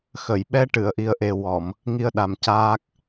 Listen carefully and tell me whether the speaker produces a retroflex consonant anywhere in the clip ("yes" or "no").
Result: yes